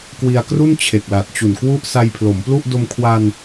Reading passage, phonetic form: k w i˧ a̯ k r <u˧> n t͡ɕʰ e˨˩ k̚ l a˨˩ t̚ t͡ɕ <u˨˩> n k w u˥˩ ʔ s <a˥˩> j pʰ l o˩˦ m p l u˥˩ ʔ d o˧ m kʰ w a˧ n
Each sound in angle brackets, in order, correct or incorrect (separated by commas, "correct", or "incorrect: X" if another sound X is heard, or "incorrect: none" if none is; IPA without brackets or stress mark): incorrect: u˥˩, correct, incorrect: a˧